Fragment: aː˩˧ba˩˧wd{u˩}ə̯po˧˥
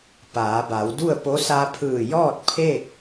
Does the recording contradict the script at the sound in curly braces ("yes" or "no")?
yes